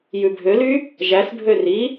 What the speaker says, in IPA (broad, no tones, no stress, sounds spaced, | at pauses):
j ʉ bʱ ø l y | ʒ æ s bʱ ø r i